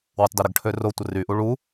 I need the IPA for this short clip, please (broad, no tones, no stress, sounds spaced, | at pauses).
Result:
w u tˤ d ø ɾ ə ɡ ʈʰ ø r o tʷ ə r y ʔ u ɭ u